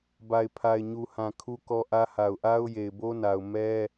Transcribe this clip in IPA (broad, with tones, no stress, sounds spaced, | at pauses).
b a˨ ɪ̯ pʰ a˨ ɪ̯ ɲ u˨ h ã˨ kʰ u˦ k ɔ˦ ʔ ä˦ h a˨ ʊ̯ ʔ a˦ ʊ̯ j e˨ ɪ̯ b o˦ n a˨ ʊ̯ m ɛ˦